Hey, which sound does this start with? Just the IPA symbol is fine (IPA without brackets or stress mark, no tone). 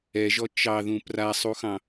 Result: ɛ